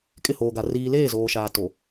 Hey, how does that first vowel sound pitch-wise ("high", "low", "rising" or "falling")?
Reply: falling